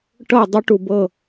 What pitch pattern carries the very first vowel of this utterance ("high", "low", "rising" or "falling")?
falling